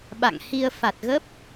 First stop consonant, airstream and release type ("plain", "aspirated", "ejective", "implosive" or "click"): implosive